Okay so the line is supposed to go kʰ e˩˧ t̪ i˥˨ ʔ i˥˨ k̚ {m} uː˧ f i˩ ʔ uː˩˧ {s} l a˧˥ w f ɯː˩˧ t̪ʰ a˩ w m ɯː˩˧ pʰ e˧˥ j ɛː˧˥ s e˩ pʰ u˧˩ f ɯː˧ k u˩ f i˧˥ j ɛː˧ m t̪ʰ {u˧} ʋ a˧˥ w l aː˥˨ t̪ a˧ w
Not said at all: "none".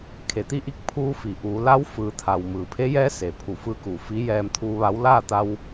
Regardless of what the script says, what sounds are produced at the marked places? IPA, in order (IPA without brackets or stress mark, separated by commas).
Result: pʰ, none, uː˧